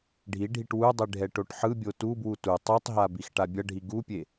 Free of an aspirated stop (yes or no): yes